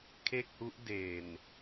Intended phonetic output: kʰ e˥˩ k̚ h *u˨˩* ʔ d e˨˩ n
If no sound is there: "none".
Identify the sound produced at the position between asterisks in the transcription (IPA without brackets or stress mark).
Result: u˦˥